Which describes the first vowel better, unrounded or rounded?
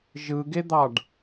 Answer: unrounded